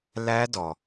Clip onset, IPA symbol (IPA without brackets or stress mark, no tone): l